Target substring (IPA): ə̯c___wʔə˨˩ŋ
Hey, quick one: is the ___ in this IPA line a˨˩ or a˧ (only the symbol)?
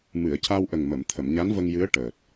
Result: a˧